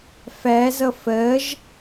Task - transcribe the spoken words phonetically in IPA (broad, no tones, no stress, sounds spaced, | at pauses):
f æ z ʌ f ɜ ʒ